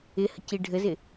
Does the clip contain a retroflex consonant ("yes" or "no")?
yes